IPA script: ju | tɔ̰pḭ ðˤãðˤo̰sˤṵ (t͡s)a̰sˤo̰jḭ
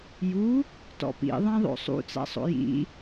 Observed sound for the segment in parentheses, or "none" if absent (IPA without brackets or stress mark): t͡s